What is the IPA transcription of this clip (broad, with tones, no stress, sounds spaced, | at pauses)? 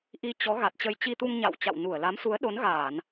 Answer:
ʔ i˧ t͡ɕ ɔ˨˦ ɣ a˨˩ t̚ t͡ɕ ə˧ j t͡ɕ i˧ t̪ u˧ ŋ ɲ a̰˧˨ w t͡ɕ a̰˧˨ w n u˧˩ ə̯ l a˨˦ m s u˨˦ ə̯ ɗ o˨˦ n ɣ aː˧˩˨ n